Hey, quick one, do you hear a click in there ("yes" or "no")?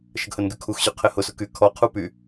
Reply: no